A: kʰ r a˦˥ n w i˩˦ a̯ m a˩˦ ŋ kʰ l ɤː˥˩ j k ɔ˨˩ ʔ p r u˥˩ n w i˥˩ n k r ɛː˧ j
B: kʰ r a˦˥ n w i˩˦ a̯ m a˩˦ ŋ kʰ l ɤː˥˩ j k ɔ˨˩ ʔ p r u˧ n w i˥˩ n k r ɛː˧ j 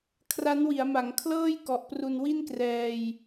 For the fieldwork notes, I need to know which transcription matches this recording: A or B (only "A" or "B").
B